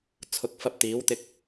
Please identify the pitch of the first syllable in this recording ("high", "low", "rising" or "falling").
rising